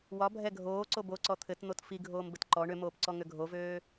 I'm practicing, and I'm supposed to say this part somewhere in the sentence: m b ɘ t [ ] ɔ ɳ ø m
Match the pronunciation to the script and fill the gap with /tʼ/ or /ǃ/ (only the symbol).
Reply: ǃ